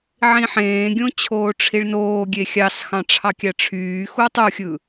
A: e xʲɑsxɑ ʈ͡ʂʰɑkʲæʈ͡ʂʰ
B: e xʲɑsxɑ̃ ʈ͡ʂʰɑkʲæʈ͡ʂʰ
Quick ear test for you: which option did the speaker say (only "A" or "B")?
B